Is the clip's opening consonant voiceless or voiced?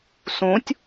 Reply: voiceless